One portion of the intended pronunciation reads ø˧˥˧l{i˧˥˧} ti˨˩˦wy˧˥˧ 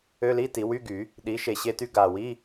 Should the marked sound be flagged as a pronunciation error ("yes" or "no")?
no